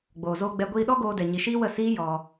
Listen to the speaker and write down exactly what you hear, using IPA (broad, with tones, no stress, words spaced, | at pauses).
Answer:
ɡ͡boː˨zoː˧ ɡ͡bɛ˧ ɡʷiː˧ɗɔ˦ɡoː˧ dɛ˨ ɲi˧ ʃiː˦wə˦˨ siː˦jɔ˧